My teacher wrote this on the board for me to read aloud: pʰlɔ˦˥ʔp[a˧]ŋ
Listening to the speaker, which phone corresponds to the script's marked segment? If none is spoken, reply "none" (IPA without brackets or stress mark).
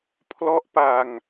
a˧